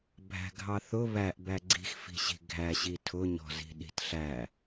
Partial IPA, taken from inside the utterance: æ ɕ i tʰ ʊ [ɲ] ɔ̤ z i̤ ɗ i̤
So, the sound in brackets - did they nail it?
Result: yes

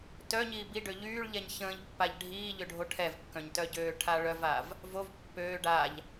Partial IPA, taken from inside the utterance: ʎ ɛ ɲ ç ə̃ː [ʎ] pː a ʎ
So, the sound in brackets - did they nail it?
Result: yes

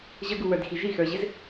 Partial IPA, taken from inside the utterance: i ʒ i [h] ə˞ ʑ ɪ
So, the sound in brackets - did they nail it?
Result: no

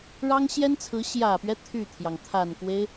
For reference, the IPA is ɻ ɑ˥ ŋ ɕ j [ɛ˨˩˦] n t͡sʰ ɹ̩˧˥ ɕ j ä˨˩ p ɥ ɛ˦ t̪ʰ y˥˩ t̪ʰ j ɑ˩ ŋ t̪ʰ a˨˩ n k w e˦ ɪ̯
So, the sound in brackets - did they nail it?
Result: no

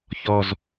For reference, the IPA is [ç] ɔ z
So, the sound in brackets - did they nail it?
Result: yes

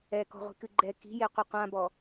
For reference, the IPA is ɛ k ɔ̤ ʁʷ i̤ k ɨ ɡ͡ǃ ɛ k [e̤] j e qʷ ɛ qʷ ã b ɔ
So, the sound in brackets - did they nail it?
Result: no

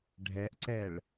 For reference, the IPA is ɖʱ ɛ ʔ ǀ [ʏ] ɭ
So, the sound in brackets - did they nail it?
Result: no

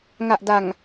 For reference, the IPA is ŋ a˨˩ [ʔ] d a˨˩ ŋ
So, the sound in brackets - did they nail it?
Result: yes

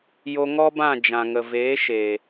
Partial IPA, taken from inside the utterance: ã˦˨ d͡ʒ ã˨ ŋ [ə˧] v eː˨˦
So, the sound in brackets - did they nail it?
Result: no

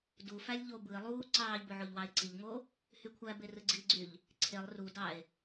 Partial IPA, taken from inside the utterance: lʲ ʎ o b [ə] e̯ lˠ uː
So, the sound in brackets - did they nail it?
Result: no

